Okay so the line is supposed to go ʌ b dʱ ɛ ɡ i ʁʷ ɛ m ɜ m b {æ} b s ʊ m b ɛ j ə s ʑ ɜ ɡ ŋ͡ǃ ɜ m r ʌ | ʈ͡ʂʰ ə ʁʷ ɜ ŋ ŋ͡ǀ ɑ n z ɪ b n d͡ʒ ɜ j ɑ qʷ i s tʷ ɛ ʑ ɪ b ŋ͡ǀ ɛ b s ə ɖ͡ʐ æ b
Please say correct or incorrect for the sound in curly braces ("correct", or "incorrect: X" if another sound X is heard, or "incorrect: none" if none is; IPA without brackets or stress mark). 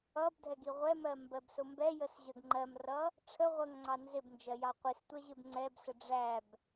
incorrect: ɜ